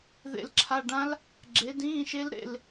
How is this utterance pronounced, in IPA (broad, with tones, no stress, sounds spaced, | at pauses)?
ð ḛ˦˨ l ǁʰ a˧˥˧ ɖ ã˦˥ l | ɡ͡ǁ e˨˦ d ĩː˧˥˧ ʃ e˦˥ l ɾ ḛ˦˨ l